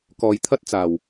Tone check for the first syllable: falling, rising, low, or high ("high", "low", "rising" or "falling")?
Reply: low